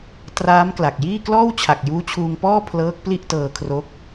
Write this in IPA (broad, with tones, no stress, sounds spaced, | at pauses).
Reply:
t r aː˦˥ m k l a˨˩ k̚ j iː˥˩ k l ɔː˥˩ w t͡ɕʰ a˨˩ k̚ j uː˦˥ t͡ɕʰ uː˧ ŋ p ɔː˥˩ pʰ l ɤː˦˥ k̚ p l i˥˩ ʔ t ɤː˧ kʰ r o˦˥ k̚